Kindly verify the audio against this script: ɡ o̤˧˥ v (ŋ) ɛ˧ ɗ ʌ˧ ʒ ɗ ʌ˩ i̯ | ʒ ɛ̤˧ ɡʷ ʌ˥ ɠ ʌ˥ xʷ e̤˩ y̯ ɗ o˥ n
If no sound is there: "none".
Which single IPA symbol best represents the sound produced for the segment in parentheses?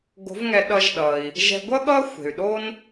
ŋ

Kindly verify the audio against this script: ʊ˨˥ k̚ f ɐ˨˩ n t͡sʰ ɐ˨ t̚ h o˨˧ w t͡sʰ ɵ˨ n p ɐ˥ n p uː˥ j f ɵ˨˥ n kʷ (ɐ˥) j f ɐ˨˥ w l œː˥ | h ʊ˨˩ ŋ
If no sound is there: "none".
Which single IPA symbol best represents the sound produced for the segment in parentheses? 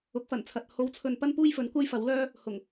ɐ˥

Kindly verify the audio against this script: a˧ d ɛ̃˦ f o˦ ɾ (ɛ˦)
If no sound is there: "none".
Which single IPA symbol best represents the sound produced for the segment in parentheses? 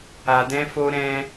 ɛ̃˦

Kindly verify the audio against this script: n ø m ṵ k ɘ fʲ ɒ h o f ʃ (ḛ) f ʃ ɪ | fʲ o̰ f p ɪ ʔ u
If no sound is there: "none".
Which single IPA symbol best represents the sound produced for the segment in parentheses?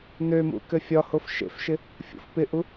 ḛ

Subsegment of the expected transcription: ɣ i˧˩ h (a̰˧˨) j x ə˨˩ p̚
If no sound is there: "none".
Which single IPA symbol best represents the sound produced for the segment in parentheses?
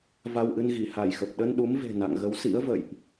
a˧˩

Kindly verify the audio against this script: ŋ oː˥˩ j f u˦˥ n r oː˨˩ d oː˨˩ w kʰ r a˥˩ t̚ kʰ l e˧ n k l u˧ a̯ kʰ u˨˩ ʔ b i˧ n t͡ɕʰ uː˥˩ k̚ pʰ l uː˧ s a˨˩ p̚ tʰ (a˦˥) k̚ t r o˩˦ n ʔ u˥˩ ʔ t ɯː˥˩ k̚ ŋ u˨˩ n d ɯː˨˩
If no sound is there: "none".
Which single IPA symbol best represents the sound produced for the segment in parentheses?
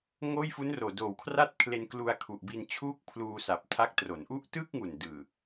a˦˥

